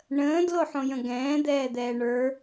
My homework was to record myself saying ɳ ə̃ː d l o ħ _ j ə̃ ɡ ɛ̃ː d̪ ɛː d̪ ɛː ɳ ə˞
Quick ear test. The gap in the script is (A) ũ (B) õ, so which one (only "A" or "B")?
B